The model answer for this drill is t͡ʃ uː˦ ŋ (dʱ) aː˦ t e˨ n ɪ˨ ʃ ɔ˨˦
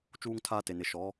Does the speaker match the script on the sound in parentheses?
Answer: no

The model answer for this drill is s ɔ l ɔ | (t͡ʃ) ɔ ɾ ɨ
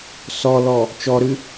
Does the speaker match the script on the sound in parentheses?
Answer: yes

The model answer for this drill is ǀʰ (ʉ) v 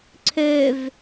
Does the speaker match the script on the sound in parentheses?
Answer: no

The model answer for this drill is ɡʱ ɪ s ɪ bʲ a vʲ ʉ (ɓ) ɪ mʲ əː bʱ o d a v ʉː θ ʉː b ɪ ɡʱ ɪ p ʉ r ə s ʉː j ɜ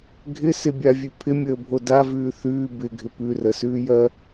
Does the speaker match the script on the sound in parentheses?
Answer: no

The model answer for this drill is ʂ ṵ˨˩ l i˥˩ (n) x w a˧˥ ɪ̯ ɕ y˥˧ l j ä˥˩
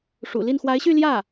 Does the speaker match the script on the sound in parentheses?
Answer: yes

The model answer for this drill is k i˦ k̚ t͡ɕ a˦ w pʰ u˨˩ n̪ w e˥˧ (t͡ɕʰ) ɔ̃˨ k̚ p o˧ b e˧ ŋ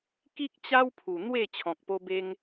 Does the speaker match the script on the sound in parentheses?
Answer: yes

